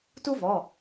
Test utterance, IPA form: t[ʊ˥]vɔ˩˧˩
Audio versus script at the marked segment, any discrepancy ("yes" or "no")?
yes